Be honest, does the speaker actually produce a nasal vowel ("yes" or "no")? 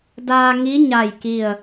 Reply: no